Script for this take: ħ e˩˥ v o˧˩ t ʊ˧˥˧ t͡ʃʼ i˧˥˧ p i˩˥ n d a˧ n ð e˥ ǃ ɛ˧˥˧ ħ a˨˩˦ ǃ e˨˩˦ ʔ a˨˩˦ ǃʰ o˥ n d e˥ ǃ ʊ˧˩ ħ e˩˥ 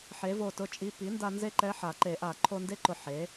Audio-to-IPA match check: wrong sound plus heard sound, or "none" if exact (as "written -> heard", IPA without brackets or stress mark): ð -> z